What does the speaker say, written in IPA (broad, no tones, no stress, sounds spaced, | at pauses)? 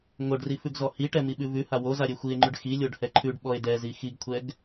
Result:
ŋ o ɖ r i f ʉ ɡ z ɔ h i ʈ ɛ m i ɓ ʉ v ʉ h a w o z a ɾʲ e xʷ i e̯ ŋ͡ǃ ʉ ɖ x i lʲ o ɖ h ɛ ǃʰ ʉ ɖ ɓ ɔ e̯ d ɛ z i x i ɡ kʷʰ ɛ ɡ